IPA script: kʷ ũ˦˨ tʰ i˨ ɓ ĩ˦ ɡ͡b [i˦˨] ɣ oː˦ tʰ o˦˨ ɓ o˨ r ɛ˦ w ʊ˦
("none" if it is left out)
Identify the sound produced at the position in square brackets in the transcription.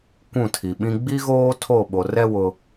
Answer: i˦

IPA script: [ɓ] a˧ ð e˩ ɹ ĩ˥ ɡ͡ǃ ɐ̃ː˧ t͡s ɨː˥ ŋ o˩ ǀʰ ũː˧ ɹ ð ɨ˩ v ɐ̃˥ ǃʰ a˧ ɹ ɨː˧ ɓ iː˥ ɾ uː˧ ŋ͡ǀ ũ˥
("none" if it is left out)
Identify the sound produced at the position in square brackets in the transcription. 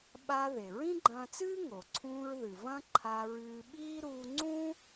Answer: ɓ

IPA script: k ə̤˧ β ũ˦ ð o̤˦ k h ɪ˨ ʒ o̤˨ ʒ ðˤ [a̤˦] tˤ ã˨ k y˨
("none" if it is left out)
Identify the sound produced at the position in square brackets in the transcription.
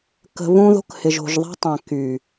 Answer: a̤˦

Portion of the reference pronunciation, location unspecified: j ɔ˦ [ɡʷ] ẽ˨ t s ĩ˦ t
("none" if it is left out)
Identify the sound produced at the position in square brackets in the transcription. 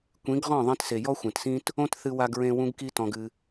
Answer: xʷ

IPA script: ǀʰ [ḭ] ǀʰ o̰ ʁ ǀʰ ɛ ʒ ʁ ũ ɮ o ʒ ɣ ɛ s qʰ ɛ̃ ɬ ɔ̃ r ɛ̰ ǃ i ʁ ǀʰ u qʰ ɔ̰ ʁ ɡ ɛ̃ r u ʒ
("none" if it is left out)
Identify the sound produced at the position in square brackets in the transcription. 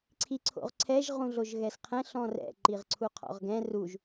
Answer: i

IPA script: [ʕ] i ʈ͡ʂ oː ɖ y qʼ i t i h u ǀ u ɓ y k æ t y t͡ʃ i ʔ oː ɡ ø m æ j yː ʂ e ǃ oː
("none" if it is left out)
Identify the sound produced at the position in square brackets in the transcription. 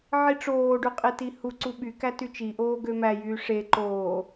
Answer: ʕ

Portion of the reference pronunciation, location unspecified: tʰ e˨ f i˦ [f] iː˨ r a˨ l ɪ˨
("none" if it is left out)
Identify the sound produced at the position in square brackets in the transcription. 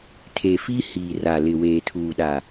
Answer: h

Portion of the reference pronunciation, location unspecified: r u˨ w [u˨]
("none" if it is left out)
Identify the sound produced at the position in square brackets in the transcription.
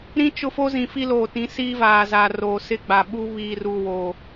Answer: o˨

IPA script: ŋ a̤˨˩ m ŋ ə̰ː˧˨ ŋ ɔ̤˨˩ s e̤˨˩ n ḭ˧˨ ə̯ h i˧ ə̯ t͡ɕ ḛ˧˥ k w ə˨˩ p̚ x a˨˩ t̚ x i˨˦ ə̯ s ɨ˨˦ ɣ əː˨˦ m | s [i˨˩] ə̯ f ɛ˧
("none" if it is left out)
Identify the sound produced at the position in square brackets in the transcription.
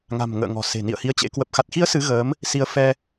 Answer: i˨˦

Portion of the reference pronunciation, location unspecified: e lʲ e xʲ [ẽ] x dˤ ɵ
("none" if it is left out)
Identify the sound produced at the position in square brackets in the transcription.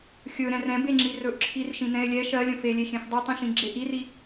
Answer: ẽ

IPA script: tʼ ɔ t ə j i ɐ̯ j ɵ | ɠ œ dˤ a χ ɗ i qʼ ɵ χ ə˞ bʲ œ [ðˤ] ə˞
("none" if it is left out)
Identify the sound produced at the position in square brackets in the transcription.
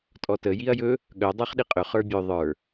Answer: ðˤ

